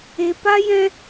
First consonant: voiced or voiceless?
voiceless